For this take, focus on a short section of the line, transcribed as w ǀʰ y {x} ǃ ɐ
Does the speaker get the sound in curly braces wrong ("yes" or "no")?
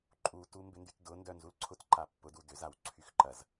no